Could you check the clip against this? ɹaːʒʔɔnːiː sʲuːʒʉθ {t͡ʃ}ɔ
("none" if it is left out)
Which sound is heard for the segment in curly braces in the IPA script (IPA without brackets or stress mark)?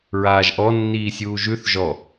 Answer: ʒ